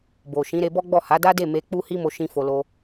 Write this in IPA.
b o˨ ʃ ĩ˨˦ ɾ e˧ b ɔ˦ ɡ͡b ɔ˦˨ h a˨˦ d a˦ d e˦˨ m e˧ k͡p u˦ h i˦ m o˧ ʃ ĩ˦ f o˧ l o˦

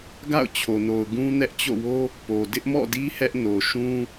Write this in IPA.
ɡ a̰˦˨ ʊ̯ t͡ɕʰ o˨ n o˨ ʊ̯ ɡ ũ˦ n ɛ˦ ʔ t͡ɕ o̰˦˨ w o˦ | p o˨ d ɪ˦ ʔ m ɔ̰˦˨ d i˦ h ɛ˦ ʔ n o˨ ʃ ũ˦

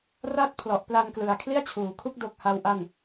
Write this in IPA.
r a˥˩ t̚ pʰ l ɔ˨˩ ʔ p l a˧ n k l ɯ˨˩ a̯ kʰ l i˥˩ a̯ t͡ɕʰ uː˩˦ kʰ u˦˥ k̚ d o˦˥ k̚ h a˦˥ w ʔ a˥˩ n

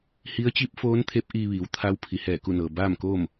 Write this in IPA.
h i˧˥ ə̯ t͡ɕ i˧˥ p̚ f oː˧˥ n t̪ʰ e˧˥ p̚ ʔ iː˧ ʋ iː˩˧ w t̪ʰ a˧˥ w pʰ i˩˧ h ɛː˧˩ k u˥˨ n ɤː˩ b aː˥˨ m k oː˥˨ m

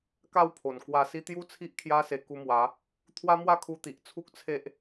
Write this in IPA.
k a˥˧ w pʰ o˨˩ n k w a˧ s i˦ t̪ j u˦ t͡sʰ i˦ ʔ kʰ j a˦ s e˧ k u˧ m w a˨˦ | t̪ʰ w a˦ m w a˥˧ kʰ u˧ t̪ i˨ ʔ t͡sʰ u˦ k̚ t͡sʰ e˦ ʔ

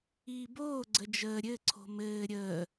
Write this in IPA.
iː b oː ɡ͡ǀ ə d͡ʒ əː ɾʲ ɘ ǀʰ o̤ m ɘː ɾʲ əː

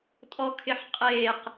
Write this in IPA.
tʼ ɔ kʰ ɪ ħ qʼ eː q

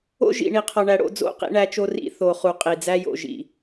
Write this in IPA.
o̰˦ ʒ ḭ˨ ɳ i˨ qʰ ɒ˨ ɳ æ˨ ɽ o̰˦ d͡z o̰˦˨ q ḭ˦ ɳ æ˦ t͡ʃ o˦ r ḭ˦ θ o˨ χ u˨ qʼ i˨ d͡z æ˦ j o̰˨ ʒ ḭ˨

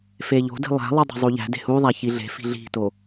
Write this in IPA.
f e ʎ o̤ d i̤ lˠ æ̤ lˠ u dˤ e̤ zˤ u ʎ æ̤ d e̤ h u ðˤ æ ç i ɮ e̤ f i̤ ɮ i̤ t o

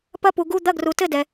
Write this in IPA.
p ɐ˦˥ p u˨ ɡ u˧˥˧ d̪ ɐ˧˥˧ ɡ r u˨ t ɘ˥˧ d ɛ˨

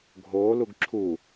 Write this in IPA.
ɡʱ oː l u ɡ ǁʰ u

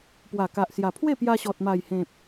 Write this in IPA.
p w a˨˩ k a˨ ʔ s j a˨˩ pʰ w e˥˧ p j a˧ ɕ ɔ˨ t̚ m a˨˩ j h ẽ˨ p̚

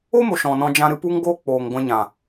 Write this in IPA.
o˦ m o˨ ʃ ɔ̃˨ n ɔ̃˧ d͡ʒ ã˧ ɾ ɨ˧ p u˦ ŋ ɡ oː˦ k͡p oː˨ ŋ ɡʷ ɛ̃˧ ɲ ã˨

